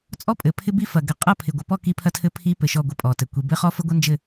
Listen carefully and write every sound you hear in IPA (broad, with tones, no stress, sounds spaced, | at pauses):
t͡sʼ ɔ˦ pʼ ɘ˨ pʰ ɪ˦ b i˦ f ɐ˨ ɡ ɘ˨ qʼ ɐ˦˨ pʰ ɪ˨ ɡʷ ə˨ p ɔ˦˨ k i˦ pʰ ɐ˦ tʰ ɘ˦ pʰ i˦ p ɘ˨ ʃ ɔ˦˨ ɡʷ ɘ˦ pʼ ɔ˨ t ɘ˨ kʷ i˨ b ɘ˦ χ ɔ˦ f ə˦ ɡʷ ɐ˦ n d͡ʒ ɘ˦˨